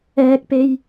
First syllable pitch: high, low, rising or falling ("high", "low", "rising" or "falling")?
high